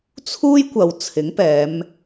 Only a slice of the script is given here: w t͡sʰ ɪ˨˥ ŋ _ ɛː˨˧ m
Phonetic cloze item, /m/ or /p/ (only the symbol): p